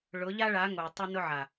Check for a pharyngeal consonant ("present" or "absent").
present